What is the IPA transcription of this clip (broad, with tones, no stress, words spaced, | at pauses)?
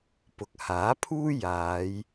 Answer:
pʊ˨k̚ haː˨˥pʰuː˥ jaː˨˧j